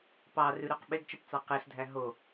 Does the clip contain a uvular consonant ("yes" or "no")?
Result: yes